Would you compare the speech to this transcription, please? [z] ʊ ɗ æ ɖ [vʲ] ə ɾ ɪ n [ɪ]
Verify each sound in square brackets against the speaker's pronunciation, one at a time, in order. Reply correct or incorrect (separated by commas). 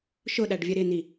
incorrect, correct, incorrect